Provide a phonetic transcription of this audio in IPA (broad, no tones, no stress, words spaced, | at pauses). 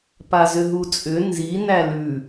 pazʏɦut͡sʼʏ nzi nælʉ